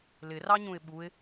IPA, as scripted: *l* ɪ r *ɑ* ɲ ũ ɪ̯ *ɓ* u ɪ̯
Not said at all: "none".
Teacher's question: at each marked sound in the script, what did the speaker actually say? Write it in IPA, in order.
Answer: l, ɑ, ɓ

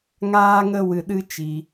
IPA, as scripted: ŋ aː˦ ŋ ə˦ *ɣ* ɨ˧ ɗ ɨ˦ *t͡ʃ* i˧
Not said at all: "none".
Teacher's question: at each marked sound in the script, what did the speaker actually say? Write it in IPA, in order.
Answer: w, t͡ʃ

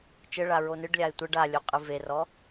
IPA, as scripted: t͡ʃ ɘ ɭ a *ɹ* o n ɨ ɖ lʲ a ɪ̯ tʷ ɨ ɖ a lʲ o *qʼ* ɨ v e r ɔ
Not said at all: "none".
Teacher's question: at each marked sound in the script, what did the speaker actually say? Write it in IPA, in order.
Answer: ɹ, qʼ

